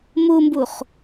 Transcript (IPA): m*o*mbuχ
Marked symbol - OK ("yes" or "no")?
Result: no